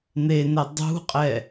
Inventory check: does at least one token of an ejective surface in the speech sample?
yes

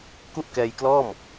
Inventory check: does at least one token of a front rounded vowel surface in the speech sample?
no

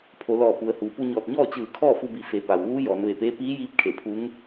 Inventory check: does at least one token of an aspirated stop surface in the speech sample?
yes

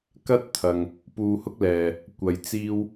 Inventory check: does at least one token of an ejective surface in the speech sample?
no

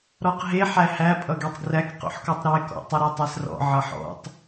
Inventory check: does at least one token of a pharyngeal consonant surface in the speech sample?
yes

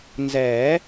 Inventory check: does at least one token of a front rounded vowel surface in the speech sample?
no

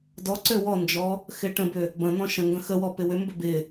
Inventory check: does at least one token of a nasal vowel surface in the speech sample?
yes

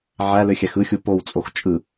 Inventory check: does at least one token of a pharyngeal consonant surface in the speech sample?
yes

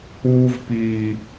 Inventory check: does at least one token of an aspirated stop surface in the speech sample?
no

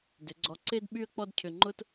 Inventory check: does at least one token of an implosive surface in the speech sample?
yes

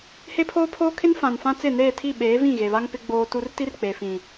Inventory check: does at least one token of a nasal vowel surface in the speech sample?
yes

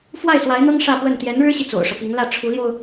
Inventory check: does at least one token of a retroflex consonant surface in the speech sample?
yes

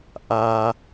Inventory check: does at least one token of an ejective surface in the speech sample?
no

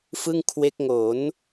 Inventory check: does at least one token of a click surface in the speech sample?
no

